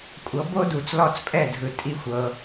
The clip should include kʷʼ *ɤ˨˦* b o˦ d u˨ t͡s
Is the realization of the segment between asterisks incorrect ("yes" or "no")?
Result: no